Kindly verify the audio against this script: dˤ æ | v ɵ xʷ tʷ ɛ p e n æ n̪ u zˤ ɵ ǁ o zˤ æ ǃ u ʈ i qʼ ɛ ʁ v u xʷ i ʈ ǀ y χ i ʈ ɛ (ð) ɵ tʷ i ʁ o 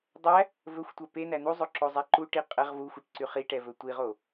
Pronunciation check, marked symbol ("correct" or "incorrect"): incorrect